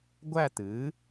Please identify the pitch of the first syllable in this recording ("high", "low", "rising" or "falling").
falling